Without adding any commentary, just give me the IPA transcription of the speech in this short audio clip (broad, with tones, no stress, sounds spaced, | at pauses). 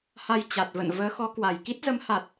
h a˧ j t͡ɕ a˨˩ t̚ v ə̰˧˨ n v əː˨˦ x ɔ˨˦ k w a˨˩ j k i˦˥ t̚ z ə˨˦ m h a˨˩ t̚